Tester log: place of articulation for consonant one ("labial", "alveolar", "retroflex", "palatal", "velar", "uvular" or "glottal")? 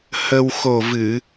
glottal